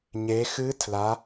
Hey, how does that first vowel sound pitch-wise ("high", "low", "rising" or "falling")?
rising